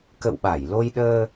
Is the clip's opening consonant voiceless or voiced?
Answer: voiceless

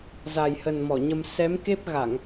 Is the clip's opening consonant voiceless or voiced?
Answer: voiced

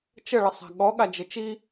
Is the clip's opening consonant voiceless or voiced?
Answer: voiceless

